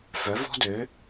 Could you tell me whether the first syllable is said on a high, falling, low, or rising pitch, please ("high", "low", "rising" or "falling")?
rising